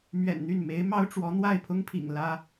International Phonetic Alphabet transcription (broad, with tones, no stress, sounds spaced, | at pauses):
m ɥ ɛ̰˨˩ n n̪ y˥˩ n m e˧˥ ɪ̯ m ɑ˥ ʊ̯ ʈ͡ʂ w ɔ˧˥ n̪ w a˥˩ ɪ̯ pʰ ʊ˥ ŋ pʰ ḭ˨˩ ŋ l ä˥